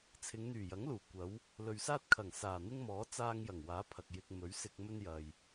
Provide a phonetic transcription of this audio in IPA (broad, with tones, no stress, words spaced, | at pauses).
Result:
t͡sʰɪ˨˧ŋn̪yː˨˩jɐ˨˥ŋluː˨˩ kʷɐ˨˥w | lɵ˨ɥsaː˥t̚kʰɐ˨˩ŋ saː˨˩n̪ɪ˥ŋmɔː˨˥ t͡saː˥ŋ jɐ˨˩ŋwaː˨˥ pʰɐ˨k̚jɪ˧k̚ mɵ˨˥ɥsɪ˧k̚ mɵ˥n jɐ˨j